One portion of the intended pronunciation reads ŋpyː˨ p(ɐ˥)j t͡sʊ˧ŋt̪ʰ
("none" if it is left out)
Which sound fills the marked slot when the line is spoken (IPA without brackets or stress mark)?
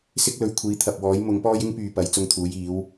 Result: ɐ˨˥